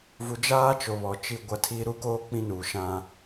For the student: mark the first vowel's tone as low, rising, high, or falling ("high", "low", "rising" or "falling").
low